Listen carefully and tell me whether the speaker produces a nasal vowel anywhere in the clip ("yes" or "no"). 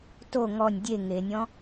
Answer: yes